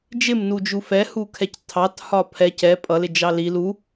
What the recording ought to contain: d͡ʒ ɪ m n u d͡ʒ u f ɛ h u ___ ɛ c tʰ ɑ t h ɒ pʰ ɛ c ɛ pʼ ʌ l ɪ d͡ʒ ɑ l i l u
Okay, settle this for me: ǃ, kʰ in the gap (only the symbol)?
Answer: kʰ